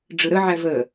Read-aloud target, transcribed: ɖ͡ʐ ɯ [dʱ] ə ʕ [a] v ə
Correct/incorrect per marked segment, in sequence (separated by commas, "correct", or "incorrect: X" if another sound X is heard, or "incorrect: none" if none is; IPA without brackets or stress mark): incorrect: ɾ, incorrect: æ